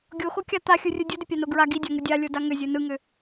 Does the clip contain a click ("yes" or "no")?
no